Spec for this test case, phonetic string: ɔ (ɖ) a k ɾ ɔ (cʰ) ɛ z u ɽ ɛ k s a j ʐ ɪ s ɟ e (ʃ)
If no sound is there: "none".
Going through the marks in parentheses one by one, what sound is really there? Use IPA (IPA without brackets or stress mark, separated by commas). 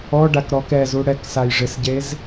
ɖ, k, z